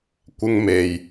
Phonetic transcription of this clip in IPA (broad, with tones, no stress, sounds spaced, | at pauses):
kʷ ɪ˥ ŋ m e˨ j